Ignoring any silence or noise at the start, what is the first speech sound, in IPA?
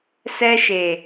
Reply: s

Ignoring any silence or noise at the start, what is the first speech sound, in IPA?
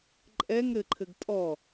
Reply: ǃʼ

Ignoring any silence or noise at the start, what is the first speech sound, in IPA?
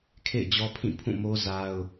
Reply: kʰ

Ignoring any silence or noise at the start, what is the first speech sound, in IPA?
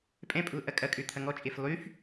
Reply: pʼ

